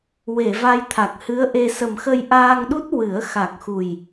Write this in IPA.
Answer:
w e˨˩˨ v a˧ j t̪ʰ a˨˩ k̚ h ɨ˧˥ ə̯ ʔ e˧ s ə˨˩ m x ə˧ j ʔ aː˧ ŋ ɗ u˦˥ t̚ w ɨ˨˩˦ ə̯ x a˨˩ k̚ x u˨˩ j

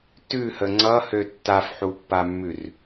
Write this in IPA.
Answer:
t ʉ h ə ŋ͡ǀ ʌ h ø tː a f ħ u pː a mː ʉ r

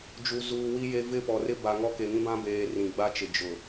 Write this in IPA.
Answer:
d͡ʒ u˨ z uː˨ w i˦ j e˦ v ɪ˦˨ p ɔ˨ r ɪ˦ b a˨ ŋ ɔ˦ k e˨ ŋ ĩ˦ b ã˦ b eː˨ r ĩ˨ ɡ͡b a˦ t͡ʃ ɪ˨ d͡ʒ ʊ˨

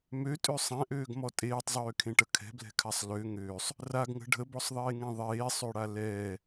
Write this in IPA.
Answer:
m ø tʼ ø sˤ ɛ̃ ʔ øː ɡ m ɔ tʼ eː tˤ zˤ øː kʰ ẽ ʈ ə kʰ ɛ̤ b l ɛ̤ kʰ a sˤ l ø ŋ øː sˤ | r a ɡ ŋ ə̤ ɖʱ ə b ɔ sˤ ðˤ eː ŋ ɛ̃ ðˤ eː sˤ ø ɽ a l ɛː

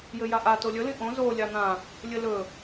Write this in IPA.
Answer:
j ɘ j a ʔ a t o lʲ ɵ l ĩ ʔ õ z o lʲ a n̪ ã | lʲ ɘ l ɵ

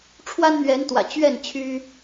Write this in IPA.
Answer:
ʈ͡ʂʰ w a˦ n n̪ ɥ ɛ˨˦ n t̪ w ä̰˨˩ t͡ɕ ɥ ɛ˥˨ n t͡ɕʰ y˦

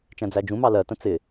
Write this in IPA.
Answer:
t͡ʃ æ̃ d͡z æ d͡ʒ ũ m ɑ l ɜ t ə̃ t͡s ɪ

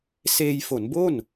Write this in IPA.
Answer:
s eː˧ j f o˩˦ n b o˥˩ n

